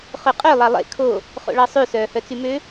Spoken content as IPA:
χ ɵ qʼ ø lˠ ɑ lˠ ḛ kʰ o | χ o̰ ɭ ɑ sˤ ʉ s œː h œ t͡s y m ø

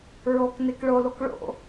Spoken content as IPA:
ɹ oː k n e k ɭ o l o k ɭ o̰

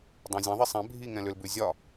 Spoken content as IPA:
dˤ ã zʲ ã ðˤ i sˤ ɛ̃ bʱ i ŋ ɛ̃ l ʏ l b ʉ zʲ ɒ

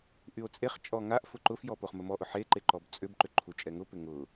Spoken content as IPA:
ʔ y o̯ t͡sʼ e χ t͡ʃʼ ɔ ŋ a ʔ f ʊ ǃ ʊ f j ɔ p o χ m ə m ɔ ʔ ʊ ħ e ǃ e ǃ ɔ b t͡sʼ ʏ b ǃ ʏ ǃʰ u t͡ʃʼ ɛ ŋ ʊ p ɪ ŋ ʊ

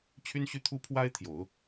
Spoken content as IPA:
t͡ɕʰ y˥ n ɕ y˥ t̪ʰ u˥ pʰ w a˥ ɪ̯ t̪ʰ j o˨˩˦ ʊ̯

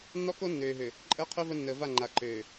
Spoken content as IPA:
nː ɔ˦ k o˦ nː øː˨ ɦ ø˨ | ǃʼ əː˦ qʰ ø˦ v ə˦ nː əː˨ v a˦˨ ŋ͡ǃ a˨ ǃ øː˨

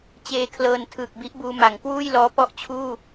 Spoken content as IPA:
t͡ɕ eː˧ kʰ l ɤː˧ n tʰ ɯː˨˩ k̚ b i˦˥ ʔ b uː˧ m a˩˦ ŋ k w uː˥˩ j l ɔː˦˥ p ɔ˥˩ ʔ t͡ɕʰ uː˥˩

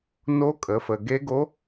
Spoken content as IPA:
n o˧˥ kʼ ə˩˧ f ə˩ ɡ e˧˥ ɡ o˧˥

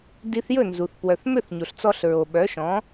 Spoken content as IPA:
d i˧ θ j ɵ˥˩ n z u˩ θ p w œ˩ θ m ø˥˩ θ ɲ o˩ ɬ t͡s ɔ˧ ɬ ɹ o˩ ɓ œ˩˥ ʃ ɔ̃˩˥

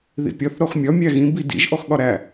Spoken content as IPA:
ð ḭ pʲ ɒ θ ɾ ɔ x mʲ ɒ mʲ æ ɣ ĩ b i d ḭ ʒ ʔ ɔ x ɠ ɒ ɾ æ

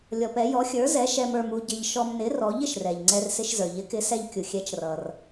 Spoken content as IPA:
lʲ ɔ˧ p ɛ˨˥ j ɔ˨˥ xʲ ə˞˨˥ z ɛ˨˥ ʃ ɛ˧ m ə˞˧ m u˧ ɟ ɪ˧ ʎ ʃ ɔ˧ m n ɪ˨˥ r ɔ˨˥ ʎ ɪ˩ ʃ r ɛ˩ ʎ ŋ͡ǀ ɛ˧ r s ɪ˧ ʃ z ə˞˩ ʎ ɪ˨˥ k ɪ˨˥ s ɛ˧ ʎ kʲ u˩ xʲ ɛ˨˥ t͡ʃ r ʌ˩ r

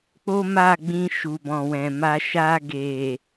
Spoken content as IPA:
k͡p o˦ m a˦˨ ɡ͡b ĩ˧ ʃ u˨ b ɔ̃˨ w ɛ̃˨ m a˧ ʃ a˧ ɡ e˨

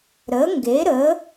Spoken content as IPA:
ɾ ə˩˥ ŋ ɡ e˩˥ ɾ ə˩˥

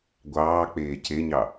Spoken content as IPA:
ɡʷ ɑː k͡p eː c e ɲ ɑ

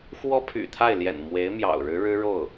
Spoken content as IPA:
x w ɔ˥ pʰ y̰˨˩ t̪ʰ a˥˩ ɪ̯ l j ɛ̰˨˩ n m w e˧˥ ɪ̯ m j ɑ̰˨˩ ʊ̯ ɻ ɻ̩˧˥ ɻ ɻ̩˥ ɻ o˥˩ ʊ̯

